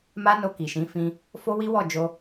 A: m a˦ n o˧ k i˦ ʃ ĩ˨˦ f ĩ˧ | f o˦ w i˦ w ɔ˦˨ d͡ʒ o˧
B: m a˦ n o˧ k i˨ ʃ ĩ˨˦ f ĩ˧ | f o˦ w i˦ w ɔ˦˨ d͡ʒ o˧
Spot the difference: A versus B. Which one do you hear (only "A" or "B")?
B